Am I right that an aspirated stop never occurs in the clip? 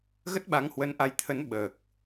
no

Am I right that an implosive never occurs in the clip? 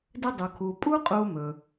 yes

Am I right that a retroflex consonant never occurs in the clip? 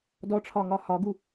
no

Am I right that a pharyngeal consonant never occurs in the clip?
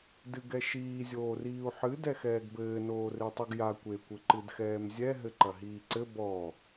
no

